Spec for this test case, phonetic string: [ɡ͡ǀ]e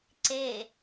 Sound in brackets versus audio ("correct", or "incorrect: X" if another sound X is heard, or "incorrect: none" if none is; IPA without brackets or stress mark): incorrect: ǀ